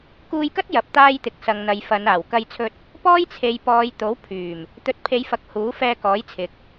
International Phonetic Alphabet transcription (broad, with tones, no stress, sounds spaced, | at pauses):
k uː˧ j k ɐ˥ t̚ j ɐ˨ p̚ t̪ aː˧ j t̪ ɪ˨ k̚ s ɐ˨ ŋ n̪ ɐ˨ j f ɐ˨˧ n aː˨˩ w k ɐ˧ j t͡sʰ ɵ˧ t̚ | p ɔː˥ j t͡sʰ e˨˧ j p ɔː˨˧ j t̪ o˨˥ w pʰ yː˨˩ m | t̪ ɵ˨ t̚ pʰ e˨˧ j f ɐ˧ k̚ h uː˨˥ f ɛː˧ k ɔː˨˥ j t͡sʰ ɪ˨ k̚